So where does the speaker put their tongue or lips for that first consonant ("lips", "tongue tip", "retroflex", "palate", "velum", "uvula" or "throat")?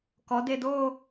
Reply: velum